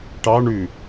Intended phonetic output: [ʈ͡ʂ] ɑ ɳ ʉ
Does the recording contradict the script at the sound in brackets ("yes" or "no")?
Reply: yes